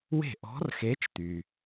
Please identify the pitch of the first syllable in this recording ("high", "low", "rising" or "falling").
falling